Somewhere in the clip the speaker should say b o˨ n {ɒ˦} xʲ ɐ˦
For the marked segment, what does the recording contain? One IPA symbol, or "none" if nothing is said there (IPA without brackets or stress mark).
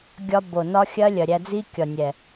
ɒ˦